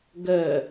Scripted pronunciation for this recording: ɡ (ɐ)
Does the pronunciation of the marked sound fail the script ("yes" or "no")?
yes